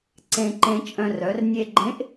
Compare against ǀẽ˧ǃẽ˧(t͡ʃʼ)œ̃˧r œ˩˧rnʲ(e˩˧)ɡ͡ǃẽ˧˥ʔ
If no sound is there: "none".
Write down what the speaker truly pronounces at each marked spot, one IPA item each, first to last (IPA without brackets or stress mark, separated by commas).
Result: t͡ʃʼ, e˧